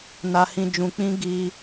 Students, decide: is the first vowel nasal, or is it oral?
oral